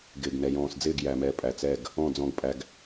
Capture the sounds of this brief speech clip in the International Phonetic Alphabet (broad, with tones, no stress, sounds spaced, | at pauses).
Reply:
ɡ ɪː˨ ɡ n ɛ˨ j ɔ̃ː˨ s d͡z ɪː˦˨ ɡ j æ˨ m ɛ˨ pʼ æ˨ t͡s ɛ˦˨ ɡ | ɔ̃˦˨ d͡z ɔ̃˦ ɡ pʼ æ˦ ɡ